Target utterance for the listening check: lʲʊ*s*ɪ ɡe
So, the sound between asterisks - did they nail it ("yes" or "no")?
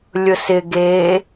yes